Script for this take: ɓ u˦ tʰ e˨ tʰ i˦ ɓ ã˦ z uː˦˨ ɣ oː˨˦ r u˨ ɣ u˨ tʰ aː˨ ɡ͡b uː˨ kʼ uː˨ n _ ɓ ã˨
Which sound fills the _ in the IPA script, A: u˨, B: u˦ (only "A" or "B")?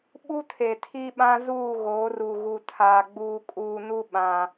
B